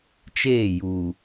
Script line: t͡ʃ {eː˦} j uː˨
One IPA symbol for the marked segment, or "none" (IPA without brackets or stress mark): eː˦˨